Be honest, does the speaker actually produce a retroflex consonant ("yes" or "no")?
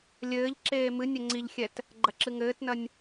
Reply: no